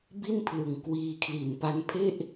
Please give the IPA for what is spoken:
bi˥˩npʰlɯ˨˩ŋ kwiː˧kʰli˨˩npa˦˥n pʰe˥˩ʔ

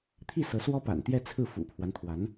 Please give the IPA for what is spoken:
t̪ʰi˥˩sɤ˧˥ swɔ˥pa̰˨˩nt̪jɛ˥˧ t͡sʰɹ̩˥˩fṵ˨˩pʰwa˦nt̪ʰwa˧˥n

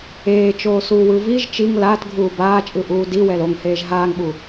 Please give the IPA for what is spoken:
eːt͡ʃoːsuːwɯ viʒ t͡ʃiŋ laːtɡʱuː baːt͡ʃʼɯʔuː diwɛl oŋheːʒ ɦaːŋɓu

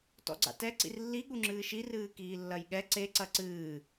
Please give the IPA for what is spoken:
tɔ̰ɡ͡ǀa̰tɛ ǀḭrlːi ɠuŋ͡ǁɨːʃi rɨːkiːlːɐjɠɛ ǀe ǀɐǀɨː

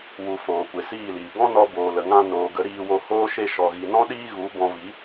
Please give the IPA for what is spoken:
wu˨ foː˨kʷe˨siː˦˨liː˨ ɡɔ̃˦ nɔ˧ boː˨lə˨ŋã˧ noː˨ɡə˨˦ ɾiː˧wo˧hoː˦ ʃe˧ʃɔ˨ɣi˨nɔ̃˦ ɗiː˦ɣu˨˦ bɔ̃˧vi˨˦

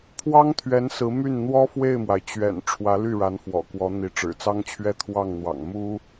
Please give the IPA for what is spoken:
pʰwɑ˥ŋt̪ʰɥɛ˧˥n sɹ̩˧˥my˥˩n n̪wɔ˥fwe˥˩ɪ̯mwa˩ɪ̯ t͡ɕɥɛ̰˨˩n ʈ͡ʂʰwä˧˥ly˥˩ ɻa˧˥nfwɔ̰˨˩kwɔ˧˥ n̪i˧˥ʈ͡ʂɻ̩˨˩t͡sɑ˥ŋt͡ɕʰɥɛ˥˧ t̪ʰwɑ˥˩ŋn̪wɑ̰˨˩ŋ mu˥

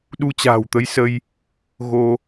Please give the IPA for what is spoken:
ɗu˧t͡ɕa̤ː˨˩wt̪ə˨˦jsə˧j | ɣo˧

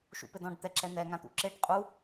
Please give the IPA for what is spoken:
ʃṵpɘdɔ̃ɖ t̪ɛǁɛn̪ɛ ŋãt̪ṵǁeɖ qʼu

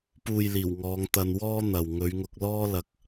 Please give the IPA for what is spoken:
puː˨jliː˨˩w ŋɔː˨˧ŋt̪ɐ˧nwɔː˥ n̪ɐ˨w ŋɵ˨˧ɥŋʊ˧k̚lɔː˥lɐ˧k̚

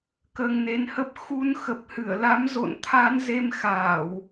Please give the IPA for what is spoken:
kəː˧ŋne˨˦nhə˦˥p̚ xu˧nxə˨˩p̚hɨ˧˩ə̯la˨˦m zo̰˧˨n t̪ʰa˨˦nze˧mxaː˧˩˨w

